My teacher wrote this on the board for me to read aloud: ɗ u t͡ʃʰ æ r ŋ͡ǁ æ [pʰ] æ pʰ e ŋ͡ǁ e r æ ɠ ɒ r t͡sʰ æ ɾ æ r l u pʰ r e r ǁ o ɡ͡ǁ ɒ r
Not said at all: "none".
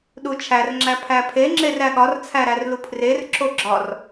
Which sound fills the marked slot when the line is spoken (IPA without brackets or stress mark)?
pʰ